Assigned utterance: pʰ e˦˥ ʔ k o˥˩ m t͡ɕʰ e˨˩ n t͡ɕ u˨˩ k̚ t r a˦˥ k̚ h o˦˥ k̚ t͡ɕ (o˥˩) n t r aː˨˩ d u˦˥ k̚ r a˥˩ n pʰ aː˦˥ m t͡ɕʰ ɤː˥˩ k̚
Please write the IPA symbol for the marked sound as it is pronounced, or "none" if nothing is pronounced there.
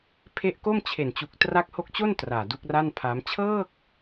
o˥˩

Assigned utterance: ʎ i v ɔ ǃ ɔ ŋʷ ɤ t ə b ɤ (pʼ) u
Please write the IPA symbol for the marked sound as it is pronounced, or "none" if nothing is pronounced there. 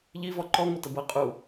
qʼ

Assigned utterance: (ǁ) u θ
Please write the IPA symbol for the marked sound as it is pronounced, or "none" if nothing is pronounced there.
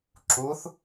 ǁ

